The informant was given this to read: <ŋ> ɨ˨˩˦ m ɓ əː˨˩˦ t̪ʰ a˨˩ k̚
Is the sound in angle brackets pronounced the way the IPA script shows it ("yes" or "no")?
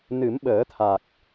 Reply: no